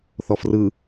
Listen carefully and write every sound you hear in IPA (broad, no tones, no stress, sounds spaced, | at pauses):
θ ɔ f r ɯ